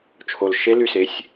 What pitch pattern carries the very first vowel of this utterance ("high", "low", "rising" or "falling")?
low